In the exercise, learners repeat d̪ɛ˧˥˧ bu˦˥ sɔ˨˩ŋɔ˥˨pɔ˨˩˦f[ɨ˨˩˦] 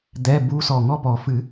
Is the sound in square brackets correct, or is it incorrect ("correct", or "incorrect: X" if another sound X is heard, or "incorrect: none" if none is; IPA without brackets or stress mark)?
correct